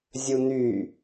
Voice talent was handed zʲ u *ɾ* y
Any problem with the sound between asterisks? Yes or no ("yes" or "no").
yes